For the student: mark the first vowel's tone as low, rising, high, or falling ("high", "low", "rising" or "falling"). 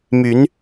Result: rising